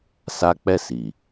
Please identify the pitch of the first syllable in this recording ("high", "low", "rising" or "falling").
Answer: high